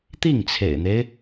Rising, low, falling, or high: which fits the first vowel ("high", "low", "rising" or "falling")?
falling